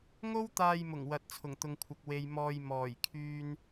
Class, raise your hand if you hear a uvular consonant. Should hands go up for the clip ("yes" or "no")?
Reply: no